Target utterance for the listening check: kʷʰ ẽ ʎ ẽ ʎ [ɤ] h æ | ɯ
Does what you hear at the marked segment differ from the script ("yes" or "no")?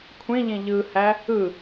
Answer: yes